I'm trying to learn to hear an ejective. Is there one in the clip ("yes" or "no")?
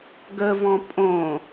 yes